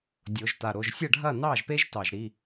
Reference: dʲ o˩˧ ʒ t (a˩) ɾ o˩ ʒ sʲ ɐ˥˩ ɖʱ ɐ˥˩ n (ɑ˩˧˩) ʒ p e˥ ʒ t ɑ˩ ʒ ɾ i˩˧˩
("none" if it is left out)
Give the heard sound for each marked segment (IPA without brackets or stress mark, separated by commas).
a˩, ɑ˥˩